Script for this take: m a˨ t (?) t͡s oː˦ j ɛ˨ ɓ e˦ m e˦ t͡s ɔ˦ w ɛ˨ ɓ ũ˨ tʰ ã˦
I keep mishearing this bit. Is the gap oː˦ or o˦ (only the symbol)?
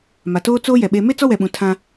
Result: oː˦